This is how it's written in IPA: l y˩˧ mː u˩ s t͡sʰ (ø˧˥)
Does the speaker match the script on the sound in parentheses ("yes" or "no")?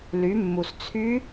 no